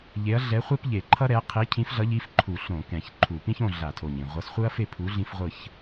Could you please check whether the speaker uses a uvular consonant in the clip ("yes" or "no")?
yes